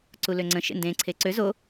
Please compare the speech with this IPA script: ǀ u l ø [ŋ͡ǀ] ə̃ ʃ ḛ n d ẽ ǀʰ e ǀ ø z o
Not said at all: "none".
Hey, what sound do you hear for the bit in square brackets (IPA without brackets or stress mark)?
ŋ͡ǀ